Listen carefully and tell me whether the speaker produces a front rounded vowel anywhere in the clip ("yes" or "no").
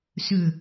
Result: yes